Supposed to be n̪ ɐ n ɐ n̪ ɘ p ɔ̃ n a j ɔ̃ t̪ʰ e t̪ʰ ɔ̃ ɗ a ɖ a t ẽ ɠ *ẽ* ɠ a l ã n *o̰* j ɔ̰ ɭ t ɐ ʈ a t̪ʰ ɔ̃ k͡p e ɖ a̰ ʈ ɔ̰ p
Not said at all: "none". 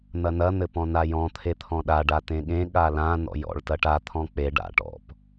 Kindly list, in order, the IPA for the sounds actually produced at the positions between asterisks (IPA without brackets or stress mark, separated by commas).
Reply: ẽ, ɔ̰